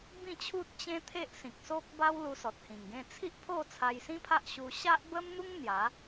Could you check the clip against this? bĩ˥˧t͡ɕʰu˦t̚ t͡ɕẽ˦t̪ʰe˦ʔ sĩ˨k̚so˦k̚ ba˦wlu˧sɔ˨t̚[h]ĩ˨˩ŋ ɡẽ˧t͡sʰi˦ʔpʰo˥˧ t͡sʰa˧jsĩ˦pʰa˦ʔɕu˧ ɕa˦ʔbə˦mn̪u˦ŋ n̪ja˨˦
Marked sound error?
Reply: no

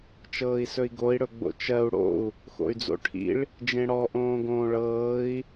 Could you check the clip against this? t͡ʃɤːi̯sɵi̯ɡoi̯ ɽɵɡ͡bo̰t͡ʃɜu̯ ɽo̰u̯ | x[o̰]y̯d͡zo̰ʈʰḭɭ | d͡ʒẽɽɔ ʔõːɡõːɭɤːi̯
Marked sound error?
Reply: no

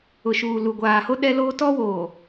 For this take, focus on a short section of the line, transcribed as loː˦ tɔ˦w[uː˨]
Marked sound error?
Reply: yes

